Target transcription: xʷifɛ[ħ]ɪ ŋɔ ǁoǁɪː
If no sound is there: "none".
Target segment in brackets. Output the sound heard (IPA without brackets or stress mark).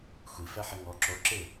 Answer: ħ